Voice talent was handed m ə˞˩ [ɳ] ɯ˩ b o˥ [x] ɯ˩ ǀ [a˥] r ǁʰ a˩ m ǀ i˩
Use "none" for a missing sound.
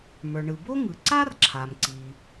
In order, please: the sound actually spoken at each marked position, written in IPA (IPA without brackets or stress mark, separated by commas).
ɳ, ŋ, a˥